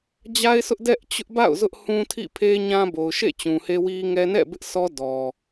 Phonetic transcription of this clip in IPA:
d͡ʑ a˦ ɪ̯ sʰ ʊ˦ ʔ d ɛ˦ ʔ t͡ɕ ʊ˦ ʔ b a̰˦˨ ʊ̯ z ʊ˦ ʔ h ũ˦ tʰ ḭ˦˨ pʰ e˦ ɲ ã˦ b o˨ ʊ̯ ʃ ḛ˦˨ t͡ɕ ũ˨ h e˦ w i˦ ŋ ɛ˦ n ɛ̰˦˨ b ɪ˦ ʔ s ɔ˦ d ɔ˨

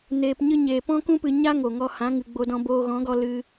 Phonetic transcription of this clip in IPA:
n eː˧ p ɲ ɨ˦ ɲ eː˨ p ɔ̃˦ k ũ˦ p ɨ˧ ɲ a˦ ŋ o˨ ŋ ɔ˧ h ã˨˦ ŋ ɨ˨ ɡ͡b o˦ d ɔ̃˦ b oː˧ ɣ ɔ̃˨˦ ɡ ɔ˧ l ɨ˧

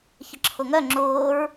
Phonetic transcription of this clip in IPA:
ç ə ǁʰ ʊ ŋ œ ŋ͡ǁ ʊː ɹ

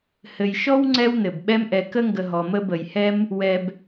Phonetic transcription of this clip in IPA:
h ɘ˨ j ʃ ɔ˥ w ŋ͡ǀ ɛ˦ w n ɘ˩ b ɓ ɛ˦ m ʔ ɛ˨ k ə˥ ŋ ɡ ə˨ ɦ ɔ˩ m ə˦ b ə˩ j h ɛ˥ m | w ɛ˨ b

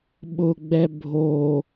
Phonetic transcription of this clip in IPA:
ɓ ʊ ɡ͡b ɛ bʱ o

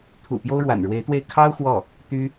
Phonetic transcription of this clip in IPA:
t̪ʰ ṵ˨˩ p j o˥ ʊ̯ ɻ w a̰˨˩ n ɻ w e˧˥ ɪ̯ t̪ w e˥˩ ɪ̯ kʰ ɑ˥ ʊ̯ x w ɔ˥˩ | t̪ y˥

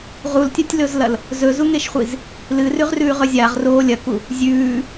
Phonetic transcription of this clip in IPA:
ʁ u l tʲ ɐ tʲ l ɵ z l ɐ l | z ɵ z u ŋ e ʃ χʷ i z | l ɨ r ʉ ʁ r ʉː ʁ ɵ zʲ a ʁ r oː lʲ ɐ k u | zʲ ʉː

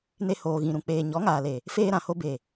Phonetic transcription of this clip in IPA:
n e˦ h oː˧ ɣ ĩ˧ ɾ ũ˧ k͡p eː˧ ɲ ɔ˨˦ ŋ aː˨ l e˨ | f eː˦ ɾ ã˨ h o˦ b e˨

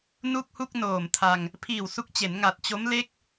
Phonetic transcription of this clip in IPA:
n u˥˩ k̚ h u˥˩ k̚ n oː˨˩ m tʰ a˧ ŋ | pʰ iː˨˩ w s u˦˥ k̚ t͡ɕ e˩˦ n ŋ a˨˩ t̚ t͡ɕ o˦˥ m l e˥˩ k̚

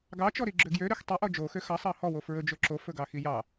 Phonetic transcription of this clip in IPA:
ɡ ɑ t͡ʃ ɔ ɾ i ɡ͡ǁ ø ɡ j ø ɾ ø x tˤ ø ʔ ɔ d͡ʒ o x ø x ɑ sˤ ɑ h ɔ w o f ɹ ɵ d͡ʒ ɵ ǁ o f ɵ ɡ ɑ x i j ɑ

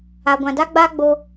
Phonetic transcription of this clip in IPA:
a˨ ɡʷ ã˨ d a˦ ɡ͡b aː˦ ɡ͡b o˧

